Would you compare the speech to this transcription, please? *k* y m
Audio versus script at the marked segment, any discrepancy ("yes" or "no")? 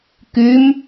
no